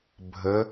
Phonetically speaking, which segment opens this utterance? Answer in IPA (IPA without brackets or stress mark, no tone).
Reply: bʱ